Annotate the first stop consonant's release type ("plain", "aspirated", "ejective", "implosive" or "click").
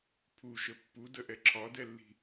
aspirated